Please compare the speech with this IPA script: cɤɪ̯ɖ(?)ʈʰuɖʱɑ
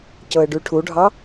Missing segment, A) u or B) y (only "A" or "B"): B